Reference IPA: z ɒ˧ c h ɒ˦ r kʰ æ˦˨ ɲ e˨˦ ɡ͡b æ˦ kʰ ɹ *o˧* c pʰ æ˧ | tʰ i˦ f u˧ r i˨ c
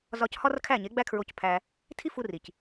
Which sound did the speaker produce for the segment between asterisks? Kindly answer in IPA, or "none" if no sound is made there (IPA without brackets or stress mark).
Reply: o˧